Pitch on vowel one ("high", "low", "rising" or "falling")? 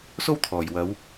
high